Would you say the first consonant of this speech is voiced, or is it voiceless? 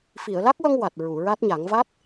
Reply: voiceless